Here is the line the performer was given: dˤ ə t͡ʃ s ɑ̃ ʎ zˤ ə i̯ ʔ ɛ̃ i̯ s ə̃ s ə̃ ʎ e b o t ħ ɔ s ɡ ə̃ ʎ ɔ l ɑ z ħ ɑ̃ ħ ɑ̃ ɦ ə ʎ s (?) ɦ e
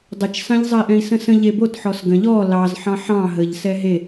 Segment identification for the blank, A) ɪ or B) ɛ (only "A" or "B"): B